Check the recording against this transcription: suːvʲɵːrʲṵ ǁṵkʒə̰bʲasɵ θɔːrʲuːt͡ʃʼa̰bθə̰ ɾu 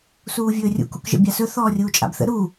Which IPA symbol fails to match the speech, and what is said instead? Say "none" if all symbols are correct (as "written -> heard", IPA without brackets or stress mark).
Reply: ǁ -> k